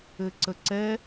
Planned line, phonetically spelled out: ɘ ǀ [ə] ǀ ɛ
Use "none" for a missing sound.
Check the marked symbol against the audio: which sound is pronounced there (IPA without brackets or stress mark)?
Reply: ə